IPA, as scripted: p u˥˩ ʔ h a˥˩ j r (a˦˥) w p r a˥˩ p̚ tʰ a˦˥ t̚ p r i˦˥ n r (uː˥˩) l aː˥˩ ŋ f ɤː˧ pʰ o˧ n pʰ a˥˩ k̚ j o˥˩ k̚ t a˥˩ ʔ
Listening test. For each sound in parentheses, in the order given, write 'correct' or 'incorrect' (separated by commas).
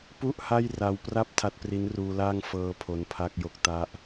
incorrect, incorrect